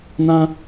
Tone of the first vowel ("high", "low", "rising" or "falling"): high